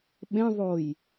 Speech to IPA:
ɓ ẽ ðˤ o j

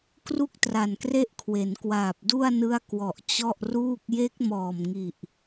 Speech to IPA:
k r u˥˩ k̚ t r a˨˩ n k r e˥˩ ʔ kʰ w e˩˦ n k w aː˨˩ p̚ d u˥˩ a̯ n ɯ˦˥ a̯ k w ɔ˨˩ ʔ t͡ɕ ɔ˥˩ ʔ r uː˥˩ k̚ j e˦˥ k̚ m ɔː˨˩ m ŋ i˨˩ ʔ

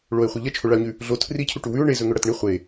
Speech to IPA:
ɭ o e̯ χʷ e ʎ ɐ t͡ʃʰ o ɭ a o̯ ɲ ʉ | ɮ o tʰ r i cʰ u ʈ u w ʉ o̯ ɳ e z ɵ ŋ ɵ ɽ ɐ t ɳ i χʷ e

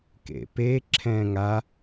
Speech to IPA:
k ḛ p eː ǁʰ ɛ̃ː ŋ a

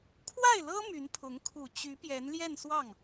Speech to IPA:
kʰ w a˥˩ ɪ̯ l ɤ˥ m y˧˥ n pʰ ʊ˧˥ ŋ kʰ u˨˩ t͡ɕ y˧˥ p j ɛ˧˥ n l j ɛ˥˧ n s w ɑ˥˩ ŋ

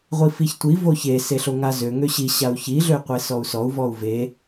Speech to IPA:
ʁʷ i f i ç tʷ i v o ç e s e ɬ o ŋ a z ø ŋ ø ɕ i ɕ a u̯ ç i ɮ ø y̯ qʷ e s ɔ u̯ s ɔ u̯ v ɔ u̯ v e

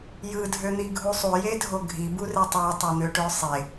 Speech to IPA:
j ɯ dʱ ø n̪ i ɡʱ u sˤ u j e dʱ o ɡʱ i b u r e tˤ æ tˤ o n̪ ø ʈ ø sˤ e

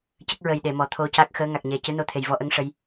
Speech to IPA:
c ə˦˥ k̚ ɹ ə˨˩ j ɗ e˨˩˨ m ɔ˨˩˨ t̪ʰ o˧ c a˦˥ k̚ x əː˧˥ ŋ a˨˩ k̚ ɲ ɛ˨˩ c ɨ˧˥ n o˧ t̪ʰ e˨˩ j v ɔ˧ ʔ ə˧˥ ŋ ʂ ə˧˥ j

